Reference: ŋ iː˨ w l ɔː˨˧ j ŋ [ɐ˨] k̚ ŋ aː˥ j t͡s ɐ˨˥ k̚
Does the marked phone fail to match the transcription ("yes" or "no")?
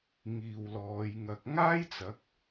no